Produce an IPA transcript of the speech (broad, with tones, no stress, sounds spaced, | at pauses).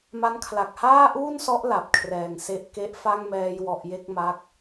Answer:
m a˦˥ n kʰ l a˨˩ k̚ h aː˥˩ ʔ uː˥˩ n s ɔ˦˥ ʔ l a˨˩ p̚ kʰ r ɛː˨˩ ŋ s e˦˥ ʔ k e˦˥ ʔ f a˥˩ ŋ m ɛː˧ j w ɔ˨˩ ʔ j e˥˩ k̚ m a˦˥ k̚